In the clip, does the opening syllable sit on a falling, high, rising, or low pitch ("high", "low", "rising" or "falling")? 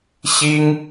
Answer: high